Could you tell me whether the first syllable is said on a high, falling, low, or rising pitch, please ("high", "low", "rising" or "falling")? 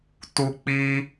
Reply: low